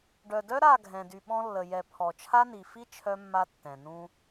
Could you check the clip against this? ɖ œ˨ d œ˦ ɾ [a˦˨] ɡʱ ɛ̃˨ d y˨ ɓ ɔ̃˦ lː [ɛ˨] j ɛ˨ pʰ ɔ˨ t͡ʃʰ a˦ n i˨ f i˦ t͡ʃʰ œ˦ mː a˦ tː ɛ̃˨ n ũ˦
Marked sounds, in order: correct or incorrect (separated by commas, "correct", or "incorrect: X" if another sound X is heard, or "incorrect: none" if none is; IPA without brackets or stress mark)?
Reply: correct, incorrect: ə˨